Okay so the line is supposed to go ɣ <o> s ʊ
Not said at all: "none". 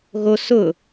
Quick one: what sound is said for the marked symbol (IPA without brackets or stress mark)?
o